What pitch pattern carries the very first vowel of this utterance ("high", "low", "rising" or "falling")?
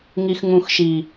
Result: low